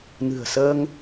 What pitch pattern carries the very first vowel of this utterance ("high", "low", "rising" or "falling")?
low